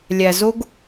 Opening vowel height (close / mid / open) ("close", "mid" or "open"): open